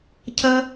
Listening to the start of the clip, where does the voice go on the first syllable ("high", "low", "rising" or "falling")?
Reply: high